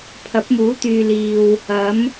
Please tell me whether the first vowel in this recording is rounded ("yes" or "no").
no